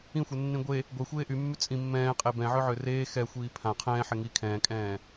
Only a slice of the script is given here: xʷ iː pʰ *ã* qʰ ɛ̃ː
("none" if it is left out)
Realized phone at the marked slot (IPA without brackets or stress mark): ã